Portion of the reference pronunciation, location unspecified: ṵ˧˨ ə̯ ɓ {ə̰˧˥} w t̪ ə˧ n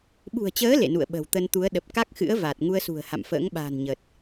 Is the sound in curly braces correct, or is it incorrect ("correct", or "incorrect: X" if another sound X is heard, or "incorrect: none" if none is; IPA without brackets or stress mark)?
incorrect: ə̤˨˩